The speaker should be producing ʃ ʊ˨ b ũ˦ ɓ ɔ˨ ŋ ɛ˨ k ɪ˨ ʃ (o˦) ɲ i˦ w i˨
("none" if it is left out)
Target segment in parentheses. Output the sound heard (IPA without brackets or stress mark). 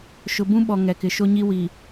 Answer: o˦